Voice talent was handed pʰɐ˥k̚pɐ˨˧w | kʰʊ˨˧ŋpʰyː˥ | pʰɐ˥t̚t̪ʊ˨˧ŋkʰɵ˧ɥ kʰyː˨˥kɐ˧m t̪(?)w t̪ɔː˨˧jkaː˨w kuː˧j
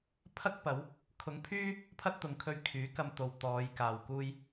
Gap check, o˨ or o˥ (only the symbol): o˨